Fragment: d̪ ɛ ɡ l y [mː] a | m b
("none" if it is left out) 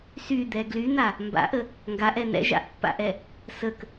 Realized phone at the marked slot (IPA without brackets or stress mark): n̪